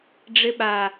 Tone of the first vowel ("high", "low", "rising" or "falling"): high